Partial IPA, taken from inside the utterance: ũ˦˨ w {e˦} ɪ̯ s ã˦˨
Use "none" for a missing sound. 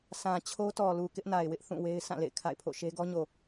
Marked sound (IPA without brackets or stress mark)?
e˦